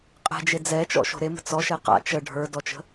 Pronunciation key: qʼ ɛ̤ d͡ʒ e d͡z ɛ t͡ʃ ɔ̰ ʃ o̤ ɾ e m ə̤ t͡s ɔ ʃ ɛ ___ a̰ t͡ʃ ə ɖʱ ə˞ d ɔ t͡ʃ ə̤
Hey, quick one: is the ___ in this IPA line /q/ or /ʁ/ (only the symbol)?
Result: q